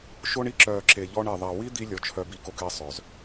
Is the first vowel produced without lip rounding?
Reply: no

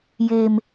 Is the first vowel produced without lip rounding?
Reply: yes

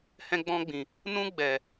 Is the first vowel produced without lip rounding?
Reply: yes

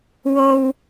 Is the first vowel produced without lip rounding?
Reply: no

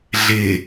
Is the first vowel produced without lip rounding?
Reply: yes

